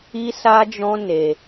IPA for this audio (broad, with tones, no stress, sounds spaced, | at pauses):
i˦ s a˦ d͡ʒ ɔ̃˦ n e˧